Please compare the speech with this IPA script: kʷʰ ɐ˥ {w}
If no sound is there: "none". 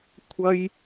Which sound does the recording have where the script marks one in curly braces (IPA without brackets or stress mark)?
j